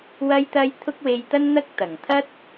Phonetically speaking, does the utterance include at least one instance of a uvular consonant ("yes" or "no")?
no